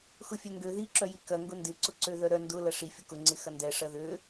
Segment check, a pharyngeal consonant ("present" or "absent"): absent